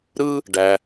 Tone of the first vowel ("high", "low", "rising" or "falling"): high